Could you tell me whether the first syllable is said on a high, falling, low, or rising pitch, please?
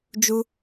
high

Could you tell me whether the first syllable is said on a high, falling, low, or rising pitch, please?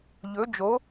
rising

